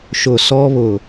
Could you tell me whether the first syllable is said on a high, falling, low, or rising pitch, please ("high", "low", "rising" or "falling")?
low